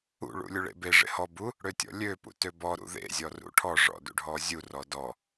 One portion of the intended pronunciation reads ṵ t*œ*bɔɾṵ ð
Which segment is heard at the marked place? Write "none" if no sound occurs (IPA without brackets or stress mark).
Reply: ø